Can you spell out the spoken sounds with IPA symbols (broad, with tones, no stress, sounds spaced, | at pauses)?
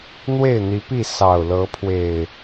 n̪ w e˥˨ ɪ̯ n̪ i˨˦ p i˥˨ s ɑ˨˩ ʊ̯ l ɤ˨˦ pʰ w e˨˩ ɪ̯